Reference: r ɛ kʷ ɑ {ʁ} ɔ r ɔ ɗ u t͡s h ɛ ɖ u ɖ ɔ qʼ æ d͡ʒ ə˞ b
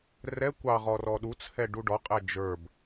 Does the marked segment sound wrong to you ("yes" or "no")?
no